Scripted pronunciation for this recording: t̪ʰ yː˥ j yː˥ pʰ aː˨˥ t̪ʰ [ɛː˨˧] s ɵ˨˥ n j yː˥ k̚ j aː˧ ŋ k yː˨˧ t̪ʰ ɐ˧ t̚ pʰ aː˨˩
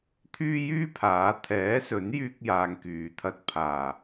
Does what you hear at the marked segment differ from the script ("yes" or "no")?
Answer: yes